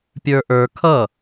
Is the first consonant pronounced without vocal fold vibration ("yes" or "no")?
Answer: yes